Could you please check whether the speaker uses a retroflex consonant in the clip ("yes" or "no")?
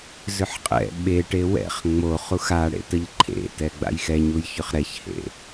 yes